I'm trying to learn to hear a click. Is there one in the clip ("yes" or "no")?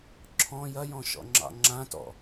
yes